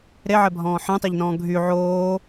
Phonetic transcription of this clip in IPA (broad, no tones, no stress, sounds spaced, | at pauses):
ɾ e ʕ ɛ bʱ ɔ̃ː ħ ẽ tˤ ɛ ʎ n ɔ̃ː ɡʱ y ʕ oː